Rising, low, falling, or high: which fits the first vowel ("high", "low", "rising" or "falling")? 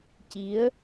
rising